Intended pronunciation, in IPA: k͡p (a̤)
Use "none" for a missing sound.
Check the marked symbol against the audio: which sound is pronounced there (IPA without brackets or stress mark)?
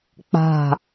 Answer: a̤